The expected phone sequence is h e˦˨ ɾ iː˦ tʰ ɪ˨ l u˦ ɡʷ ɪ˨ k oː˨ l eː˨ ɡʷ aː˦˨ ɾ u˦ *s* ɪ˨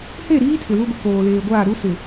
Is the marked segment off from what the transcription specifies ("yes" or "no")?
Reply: no